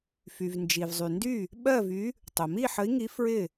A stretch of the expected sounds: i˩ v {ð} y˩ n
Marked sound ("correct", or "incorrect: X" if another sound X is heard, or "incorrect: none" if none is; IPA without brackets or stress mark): incorrect: zˤ